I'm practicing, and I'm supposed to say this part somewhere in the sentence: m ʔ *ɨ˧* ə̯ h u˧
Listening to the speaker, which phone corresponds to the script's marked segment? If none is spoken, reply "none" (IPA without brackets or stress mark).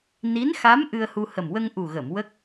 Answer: ɨ˧